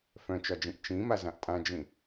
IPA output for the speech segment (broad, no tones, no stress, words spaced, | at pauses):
fœ̃t͡ʃɒd͡ʒĩʔ t͡ʃĩmazãʔ tʼãd͡ʒĩ